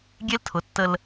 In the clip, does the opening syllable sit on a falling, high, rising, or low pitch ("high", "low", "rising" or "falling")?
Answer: high